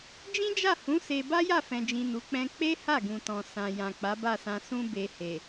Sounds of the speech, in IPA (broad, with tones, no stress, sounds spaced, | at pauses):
d͡ʒ ĩ˦ d͡ʒ a˦˨ h ũ˨˦ s e˧ b a˦ j a˦˨ f ɛ̃˨ d͡ʒ ĩ˨ n u˨˦ k͡p ɛ̃˦ k͡p e˦ h a˦˨ ɡ ũ˨ t ɔ̃˨ s ã˨ j ã˨ k͡p a˨˦ b a˦˨ s ã˧ s ũ˦ b e˧ h e˨